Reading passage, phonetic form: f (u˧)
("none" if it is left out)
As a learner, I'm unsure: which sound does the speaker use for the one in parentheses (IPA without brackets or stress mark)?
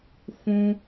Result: ũ˧